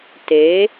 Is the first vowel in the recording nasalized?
no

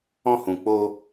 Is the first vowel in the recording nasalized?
yes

